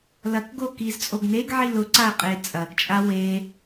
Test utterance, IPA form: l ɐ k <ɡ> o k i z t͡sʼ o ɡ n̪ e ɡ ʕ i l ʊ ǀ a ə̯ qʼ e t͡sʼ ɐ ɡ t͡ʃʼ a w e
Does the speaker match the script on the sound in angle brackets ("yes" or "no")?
yes